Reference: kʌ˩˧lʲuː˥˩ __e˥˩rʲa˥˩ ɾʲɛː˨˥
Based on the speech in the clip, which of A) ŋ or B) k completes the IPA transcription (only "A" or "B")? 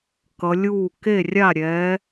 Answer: B